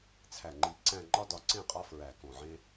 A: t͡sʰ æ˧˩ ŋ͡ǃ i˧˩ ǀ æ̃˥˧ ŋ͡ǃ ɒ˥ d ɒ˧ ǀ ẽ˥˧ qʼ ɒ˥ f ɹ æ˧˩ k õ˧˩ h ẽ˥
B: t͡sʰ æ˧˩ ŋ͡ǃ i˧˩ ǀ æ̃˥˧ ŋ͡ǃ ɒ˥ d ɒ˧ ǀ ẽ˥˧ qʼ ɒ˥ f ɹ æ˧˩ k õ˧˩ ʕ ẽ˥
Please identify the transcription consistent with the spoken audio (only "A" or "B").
B